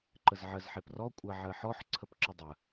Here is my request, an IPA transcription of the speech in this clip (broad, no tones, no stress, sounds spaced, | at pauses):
ǃ ə z ʕ ɜ z ħ e p r ɔ kʷʼ ɜ ʕ ɜ ħ ɔ ħ ǀʰ ə p ǁ ə dˤ ə